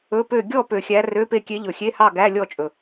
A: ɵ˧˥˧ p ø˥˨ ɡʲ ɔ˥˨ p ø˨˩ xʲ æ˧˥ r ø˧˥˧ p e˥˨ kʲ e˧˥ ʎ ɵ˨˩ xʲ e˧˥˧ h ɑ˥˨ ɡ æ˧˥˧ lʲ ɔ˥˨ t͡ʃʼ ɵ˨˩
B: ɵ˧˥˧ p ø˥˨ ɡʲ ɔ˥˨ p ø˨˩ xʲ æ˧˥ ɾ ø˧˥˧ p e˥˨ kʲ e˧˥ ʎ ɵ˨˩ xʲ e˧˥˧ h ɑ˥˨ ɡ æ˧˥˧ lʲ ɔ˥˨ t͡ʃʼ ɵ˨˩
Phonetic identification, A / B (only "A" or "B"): A